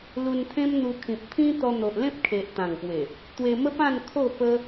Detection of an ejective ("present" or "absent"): absent